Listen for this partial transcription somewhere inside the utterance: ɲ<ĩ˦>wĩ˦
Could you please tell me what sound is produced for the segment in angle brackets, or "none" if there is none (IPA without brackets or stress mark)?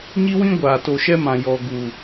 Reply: i˦